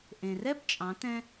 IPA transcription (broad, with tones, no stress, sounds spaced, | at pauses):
ʔ ẽ˩ r ɛ˥ b t͡ʃʼ ɑ̃˩˧ t ɛ̃˧